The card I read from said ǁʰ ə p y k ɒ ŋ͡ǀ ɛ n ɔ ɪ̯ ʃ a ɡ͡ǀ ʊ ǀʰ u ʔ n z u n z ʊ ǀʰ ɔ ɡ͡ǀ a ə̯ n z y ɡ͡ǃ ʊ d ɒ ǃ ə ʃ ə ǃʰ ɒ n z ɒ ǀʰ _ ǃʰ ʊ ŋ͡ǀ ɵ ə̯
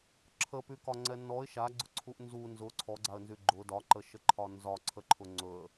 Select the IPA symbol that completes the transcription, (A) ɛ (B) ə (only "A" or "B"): B